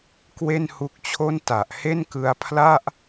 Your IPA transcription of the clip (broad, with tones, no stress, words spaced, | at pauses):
kwe˥˩nhu˦˥k̚t͡ɕʰo˥˩n ta˨˩ʔ he˥˩nkɯ˧a̯pʰla˥˩ʔ